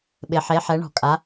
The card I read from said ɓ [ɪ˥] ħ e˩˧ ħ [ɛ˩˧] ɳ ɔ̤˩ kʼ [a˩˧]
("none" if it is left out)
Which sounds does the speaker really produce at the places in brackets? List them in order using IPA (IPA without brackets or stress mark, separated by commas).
ɪ˩, ɛ˩˧, a˩˧